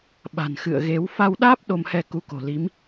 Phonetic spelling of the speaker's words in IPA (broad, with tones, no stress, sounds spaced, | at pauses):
ɓ a̤˨˩ n x ɨ̰˧˨ ə̯ ɣ e˨˦ w f a˧ w ɗ aː˦˥ p̚ ɗ o˧ m h ɛ˧ k u˨˦ k o̤˨˩ l i˨˦ m